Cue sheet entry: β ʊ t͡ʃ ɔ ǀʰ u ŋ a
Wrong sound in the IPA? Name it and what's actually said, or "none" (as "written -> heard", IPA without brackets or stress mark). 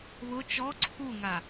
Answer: none